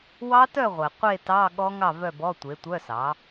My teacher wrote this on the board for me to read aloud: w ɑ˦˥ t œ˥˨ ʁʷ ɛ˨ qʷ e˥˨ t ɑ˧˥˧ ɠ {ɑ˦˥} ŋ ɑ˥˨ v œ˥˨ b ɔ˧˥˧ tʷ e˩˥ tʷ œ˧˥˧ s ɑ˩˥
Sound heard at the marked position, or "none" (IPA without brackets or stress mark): ɔ˦˥